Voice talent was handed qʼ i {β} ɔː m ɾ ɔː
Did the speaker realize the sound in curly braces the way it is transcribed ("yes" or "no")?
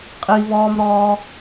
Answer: yes